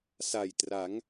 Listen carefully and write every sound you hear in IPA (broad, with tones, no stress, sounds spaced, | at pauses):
s a˨˩ j t r a˩˦ ŋ